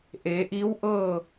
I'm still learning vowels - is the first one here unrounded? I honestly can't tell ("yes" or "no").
yes